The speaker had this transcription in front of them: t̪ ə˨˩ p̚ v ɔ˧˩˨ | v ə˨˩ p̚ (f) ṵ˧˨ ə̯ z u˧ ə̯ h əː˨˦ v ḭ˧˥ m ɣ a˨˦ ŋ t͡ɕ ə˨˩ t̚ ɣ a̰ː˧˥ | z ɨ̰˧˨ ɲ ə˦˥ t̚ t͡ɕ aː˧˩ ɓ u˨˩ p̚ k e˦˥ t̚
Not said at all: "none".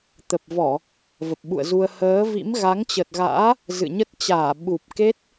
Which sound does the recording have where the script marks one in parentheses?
ɓ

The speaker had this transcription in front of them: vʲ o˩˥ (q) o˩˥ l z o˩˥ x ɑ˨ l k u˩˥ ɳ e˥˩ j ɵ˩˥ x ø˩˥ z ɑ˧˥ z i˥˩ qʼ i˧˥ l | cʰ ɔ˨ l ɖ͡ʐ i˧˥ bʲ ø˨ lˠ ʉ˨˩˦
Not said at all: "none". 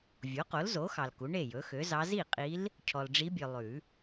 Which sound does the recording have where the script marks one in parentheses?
q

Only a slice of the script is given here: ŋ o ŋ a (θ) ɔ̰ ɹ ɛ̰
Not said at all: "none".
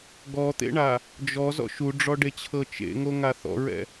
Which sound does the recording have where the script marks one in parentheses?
θ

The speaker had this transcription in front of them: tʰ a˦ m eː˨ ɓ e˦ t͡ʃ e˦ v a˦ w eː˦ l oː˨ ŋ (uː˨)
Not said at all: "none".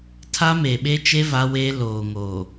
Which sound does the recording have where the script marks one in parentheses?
oː˨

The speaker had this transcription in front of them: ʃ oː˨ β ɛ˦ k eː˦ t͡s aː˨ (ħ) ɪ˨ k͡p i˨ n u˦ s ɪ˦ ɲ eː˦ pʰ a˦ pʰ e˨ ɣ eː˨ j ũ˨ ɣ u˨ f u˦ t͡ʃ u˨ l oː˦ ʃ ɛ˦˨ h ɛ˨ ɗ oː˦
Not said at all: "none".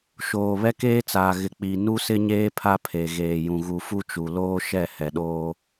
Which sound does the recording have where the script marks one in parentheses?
ɣ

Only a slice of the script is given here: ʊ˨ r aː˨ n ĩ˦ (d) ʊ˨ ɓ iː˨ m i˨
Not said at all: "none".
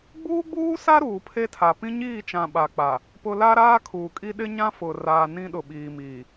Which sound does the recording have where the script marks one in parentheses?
ɗ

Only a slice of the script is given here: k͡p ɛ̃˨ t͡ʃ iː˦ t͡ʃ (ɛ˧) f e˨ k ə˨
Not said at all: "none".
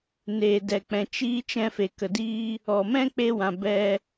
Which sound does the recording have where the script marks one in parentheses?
ɛ̃˧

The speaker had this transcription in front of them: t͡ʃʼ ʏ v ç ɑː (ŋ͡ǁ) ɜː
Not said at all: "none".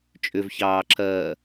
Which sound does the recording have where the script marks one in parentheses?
ǁ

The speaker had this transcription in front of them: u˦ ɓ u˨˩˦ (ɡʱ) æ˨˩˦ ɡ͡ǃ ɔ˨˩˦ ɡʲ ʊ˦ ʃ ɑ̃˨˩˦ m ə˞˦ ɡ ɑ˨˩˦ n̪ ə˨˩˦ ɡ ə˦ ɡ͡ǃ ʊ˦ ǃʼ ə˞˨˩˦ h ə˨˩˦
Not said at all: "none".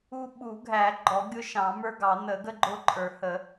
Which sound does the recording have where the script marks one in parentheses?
ɡʱ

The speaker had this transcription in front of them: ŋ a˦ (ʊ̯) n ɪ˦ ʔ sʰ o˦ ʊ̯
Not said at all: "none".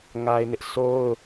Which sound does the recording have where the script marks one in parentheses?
ɪ̯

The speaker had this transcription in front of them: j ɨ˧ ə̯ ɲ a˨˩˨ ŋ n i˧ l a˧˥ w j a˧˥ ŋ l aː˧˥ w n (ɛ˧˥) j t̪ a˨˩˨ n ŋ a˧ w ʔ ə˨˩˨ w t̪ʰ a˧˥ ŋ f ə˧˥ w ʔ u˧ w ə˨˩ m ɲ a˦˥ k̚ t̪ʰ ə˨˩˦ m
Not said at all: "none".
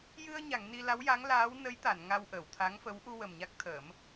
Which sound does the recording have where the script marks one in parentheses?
ə˧˥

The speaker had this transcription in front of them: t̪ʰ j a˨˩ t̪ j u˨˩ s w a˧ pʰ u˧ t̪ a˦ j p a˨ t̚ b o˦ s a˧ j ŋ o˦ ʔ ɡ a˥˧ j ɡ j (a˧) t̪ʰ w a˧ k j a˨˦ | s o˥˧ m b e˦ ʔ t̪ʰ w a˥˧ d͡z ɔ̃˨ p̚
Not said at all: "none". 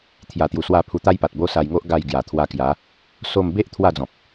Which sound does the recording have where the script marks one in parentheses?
a˨˩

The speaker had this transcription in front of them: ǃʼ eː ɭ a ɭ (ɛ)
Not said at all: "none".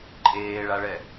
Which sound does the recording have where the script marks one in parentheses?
ɛ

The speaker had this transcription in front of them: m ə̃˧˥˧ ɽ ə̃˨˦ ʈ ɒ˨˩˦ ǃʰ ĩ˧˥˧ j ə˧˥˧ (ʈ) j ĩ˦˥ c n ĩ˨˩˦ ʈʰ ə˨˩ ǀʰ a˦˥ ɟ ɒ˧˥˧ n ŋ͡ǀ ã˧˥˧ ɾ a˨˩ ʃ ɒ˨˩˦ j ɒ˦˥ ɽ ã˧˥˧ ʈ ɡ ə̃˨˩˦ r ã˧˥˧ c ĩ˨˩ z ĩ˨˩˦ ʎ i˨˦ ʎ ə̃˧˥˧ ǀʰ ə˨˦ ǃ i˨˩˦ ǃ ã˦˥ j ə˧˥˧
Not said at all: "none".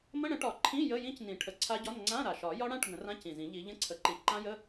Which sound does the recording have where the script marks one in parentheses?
none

